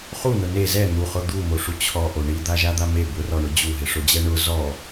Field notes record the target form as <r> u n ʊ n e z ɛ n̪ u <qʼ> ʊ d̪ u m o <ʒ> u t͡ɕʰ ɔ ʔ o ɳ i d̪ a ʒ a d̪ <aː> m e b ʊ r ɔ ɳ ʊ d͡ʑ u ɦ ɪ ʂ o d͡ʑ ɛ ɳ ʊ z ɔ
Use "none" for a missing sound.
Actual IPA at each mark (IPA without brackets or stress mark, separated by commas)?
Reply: χ, χ, ʂ, a